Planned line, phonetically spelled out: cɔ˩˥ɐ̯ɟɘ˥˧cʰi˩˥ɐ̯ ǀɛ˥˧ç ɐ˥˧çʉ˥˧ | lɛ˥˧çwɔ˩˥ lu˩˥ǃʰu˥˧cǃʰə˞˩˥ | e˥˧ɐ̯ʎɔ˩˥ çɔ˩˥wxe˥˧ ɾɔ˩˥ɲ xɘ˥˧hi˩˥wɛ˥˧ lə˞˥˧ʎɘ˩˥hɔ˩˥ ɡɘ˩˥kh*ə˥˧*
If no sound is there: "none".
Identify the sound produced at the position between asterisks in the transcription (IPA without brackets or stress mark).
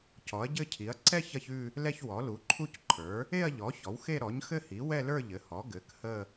ə˥˧